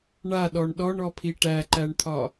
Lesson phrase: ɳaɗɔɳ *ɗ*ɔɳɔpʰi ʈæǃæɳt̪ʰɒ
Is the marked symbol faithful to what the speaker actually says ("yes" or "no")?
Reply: yes